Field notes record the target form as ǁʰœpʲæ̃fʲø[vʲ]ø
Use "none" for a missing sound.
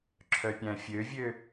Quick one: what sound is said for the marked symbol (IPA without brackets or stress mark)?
vʲ